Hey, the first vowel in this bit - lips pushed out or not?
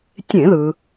no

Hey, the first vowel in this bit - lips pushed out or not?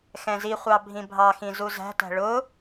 no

